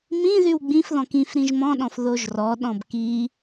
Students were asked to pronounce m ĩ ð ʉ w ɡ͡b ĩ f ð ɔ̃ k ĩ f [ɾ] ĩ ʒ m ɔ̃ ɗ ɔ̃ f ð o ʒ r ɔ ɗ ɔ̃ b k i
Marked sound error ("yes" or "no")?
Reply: no